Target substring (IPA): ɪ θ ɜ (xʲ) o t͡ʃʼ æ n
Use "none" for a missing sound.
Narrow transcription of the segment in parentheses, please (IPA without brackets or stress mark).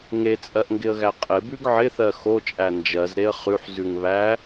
x